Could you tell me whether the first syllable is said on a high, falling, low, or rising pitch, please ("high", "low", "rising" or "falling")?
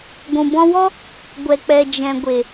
low